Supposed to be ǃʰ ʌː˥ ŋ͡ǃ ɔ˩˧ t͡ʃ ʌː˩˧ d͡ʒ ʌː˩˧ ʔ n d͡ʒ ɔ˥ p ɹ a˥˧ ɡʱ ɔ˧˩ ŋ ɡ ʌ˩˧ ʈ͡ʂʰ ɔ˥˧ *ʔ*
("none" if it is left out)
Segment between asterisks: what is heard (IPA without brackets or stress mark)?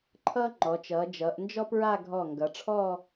none